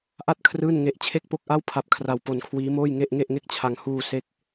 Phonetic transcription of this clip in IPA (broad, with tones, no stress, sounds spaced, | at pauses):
ʔ a˥˩ t̚ kʰ r ɯː˥˩ n ŋ e˦˥ ʔ t͡ɕʰ e˥˩ k̚ p o˥˩ k̚ ʔ a˥˩ w pʰ a˦˥ p̚ kʰ r a˧ w p o˧ n kʰ w iː˦˥ m oː˥˩ j ŋ e˥˩ ʔ ŋ e˥˩ ʔ ŋ e˥˩ k̚ t͡ɕʰ a˧ ŋ h uː˧ s e˦˥ k̚